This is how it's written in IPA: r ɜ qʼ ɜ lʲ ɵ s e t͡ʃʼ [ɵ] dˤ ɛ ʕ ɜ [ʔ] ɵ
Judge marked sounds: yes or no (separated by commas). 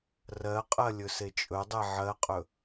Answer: yes, no